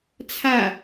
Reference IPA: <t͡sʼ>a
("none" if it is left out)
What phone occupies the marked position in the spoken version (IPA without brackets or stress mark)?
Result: t͡sʰ